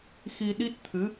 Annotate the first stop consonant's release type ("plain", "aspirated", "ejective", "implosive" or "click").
implosive